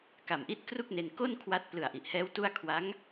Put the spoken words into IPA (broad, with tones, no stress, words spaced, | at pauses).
ka˨˩mʔi˥˩t̚ kru˥˩k̚ne˧n ko˥˩n kʰwa˦˥t̚ plɯ˨˩a̯ʔi˨˩ʔhɛː˦˥w tu˥˩a̯ kʰwa˦˥ŋ